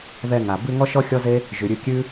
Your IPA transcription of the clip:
ðɛ˧ ŋa˨ bʉ˧ ŋɔ˦ʃɔ˦xʲɔ˦ze˦ | ʒʉ˨ɾʲʉ˧kʲʉ˦

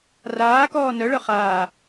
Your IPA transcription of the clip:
raːkɔː nœɭœ χaː

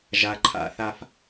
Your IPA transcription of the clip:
ʒa˨ ǃʰa̰˨ θa˦f

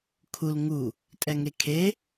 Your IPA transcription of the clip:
kʰul ŋu | tʼɛŋekʰe

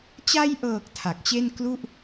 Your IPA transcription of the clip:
t͡ɕa˧jʔɤː˨˩k̚ tʰa˨˩k̚t͡ɕe˥˩n klu˥˩ʔ

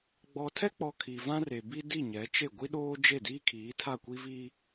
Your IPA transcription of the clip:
ɡ͡bɔ˨tʰɛ˦k͡pɔ˨ kʰi˨vã˦re˨ bi˦di˦˨ ɲɛ˨˦t͡ʃe˦˨ ɡʷi˦ɗoː˦d͡ʒe˦˨diː˦ kʰiː˨˦tʰa˦˨kʷi˦ vi˦

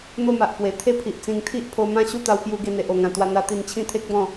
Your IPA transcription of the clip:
n̪o˥˧ma˨ʔpwe˨˩ t̪ʰe˥˧ pʰi˨ʔt͡sĩ˧ŋ t̪ʰi˦ʔpʰo˧mã˦ɕu˥˧ t̪a˧w pju˧ ɡe˧n̪e˨ʔo˨˩ŋã˨˩ t̪wa˧n̪a˧ t̪i˧nt͡ɕʰĩ˦t̪ʰe˦k̚bɔ̃˥˧

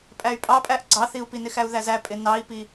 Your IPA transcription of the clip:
pʼæy̯pʼɑpʼæʔ ɡ͡ǀɑθiu̯pi nɪxæu̯ðæzæ pʼɪnɑi̯pi

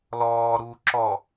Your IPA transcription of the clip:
lɔːɾuː ǁɔ

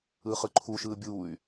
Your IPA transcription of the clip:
ɯːχɯǃʰu ʃɯːbʲuːy̯

